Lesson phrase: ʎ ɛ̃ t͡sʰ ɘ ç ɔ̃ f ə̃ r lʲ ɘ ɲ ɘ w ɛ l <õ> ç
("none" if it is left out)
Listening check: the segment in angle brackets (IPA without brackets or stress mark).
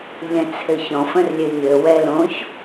õ